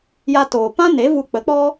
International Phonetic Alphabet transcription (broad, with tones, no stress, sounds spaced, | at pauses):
j a˧ t oː˨ p ã˦ n e˨˦ v u˧ k͡p ə˨˦ k͡p ɔ˦